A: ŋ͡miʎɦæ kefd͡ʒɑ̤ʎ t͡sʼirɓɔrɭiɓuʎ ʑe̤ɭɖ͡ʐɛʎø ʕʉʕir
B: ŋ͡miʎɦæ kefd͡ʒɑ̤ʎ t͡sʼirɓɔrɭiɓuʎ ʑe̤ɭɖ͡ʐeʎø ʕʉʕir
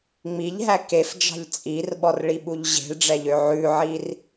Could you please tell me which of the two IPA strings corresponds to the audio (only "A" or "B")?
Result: A